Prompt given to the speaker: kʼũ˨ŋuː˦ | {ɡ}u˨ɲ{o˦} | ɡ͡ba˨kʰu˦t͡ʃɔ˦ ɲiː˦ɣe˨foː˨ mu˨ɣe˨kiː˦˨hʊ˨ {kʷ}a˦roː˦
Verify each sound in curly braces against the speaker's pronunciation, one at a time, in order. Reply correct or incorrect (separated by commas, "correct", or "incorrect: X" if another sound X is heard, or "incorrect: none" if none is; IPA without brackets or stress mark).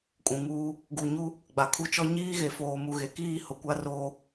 correct, incorrect: u˦, correct